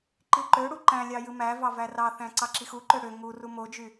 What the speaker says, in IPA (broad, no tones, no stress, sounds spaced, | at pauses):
ǃ i ǃ ø ɽ u ǃ æ̃ lʲ ɑ j ɯ m æ v ɑ v æ r ɑ θ æ̃ ǀ ɑ ǁ i x u ǃ ø ɽ ø ŋ u r u m o d͡ʒ y